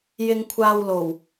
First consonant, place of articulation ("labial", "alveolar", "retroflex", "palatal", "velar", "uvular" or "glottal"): palatal